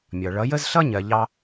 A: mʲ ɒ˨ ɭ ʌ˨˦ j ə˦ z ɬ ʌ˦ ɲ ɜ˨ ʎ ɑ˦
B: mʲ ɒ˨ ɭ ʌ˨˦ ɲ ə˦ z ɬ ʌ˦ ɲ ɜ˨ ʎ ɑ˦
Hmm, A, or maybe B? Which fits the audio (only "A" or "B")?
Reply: A